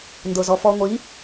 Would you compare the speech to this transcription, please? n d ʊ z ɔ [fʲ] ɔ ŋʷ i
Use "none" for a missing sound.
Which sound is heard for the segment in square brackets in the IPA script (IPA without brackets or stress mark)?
f